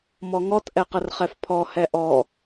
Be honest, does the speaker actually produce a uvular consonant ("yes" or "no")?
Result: yes